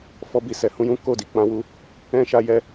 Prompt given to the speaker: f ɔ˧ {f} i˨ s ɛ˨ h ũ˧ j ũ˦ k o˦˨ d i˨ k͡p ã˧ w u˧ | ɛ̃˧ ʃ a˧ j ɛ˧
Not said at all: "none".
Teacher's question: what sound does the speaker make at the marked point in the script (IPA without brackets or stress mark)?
b